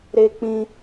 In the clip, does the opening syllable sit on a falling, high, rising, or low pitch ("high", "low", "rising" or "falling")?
high